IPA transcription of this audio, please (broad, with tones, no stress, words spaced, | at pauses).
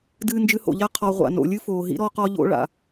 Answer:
dɨː˧nd͡ʒɨ˧ho̰˨ʎa˦ qʰɔ˨ʁʷa̰˨no̰˨ lʲɨ˦foː˨ɦḭ˦ ɾɔ˧qɔ˧ʎo̰˧ ɭa̰˨